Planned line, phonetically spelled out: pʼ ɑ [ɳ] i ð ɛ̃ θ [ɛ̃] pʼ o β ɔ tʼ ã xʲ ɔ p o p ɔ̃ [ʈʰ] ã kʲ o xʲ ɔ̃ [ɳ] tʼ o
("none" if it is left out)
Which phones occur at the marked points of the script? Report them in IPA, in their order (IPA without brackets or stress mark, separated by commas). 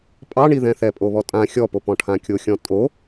ɳ, ɛ, ʈʰ, none